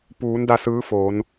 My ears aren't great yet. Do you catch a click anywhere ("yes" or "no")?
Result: no